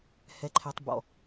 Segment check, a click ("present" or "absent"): present